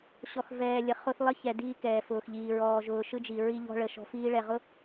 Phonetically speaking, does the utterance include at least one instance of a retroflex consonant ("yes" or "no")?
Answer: yes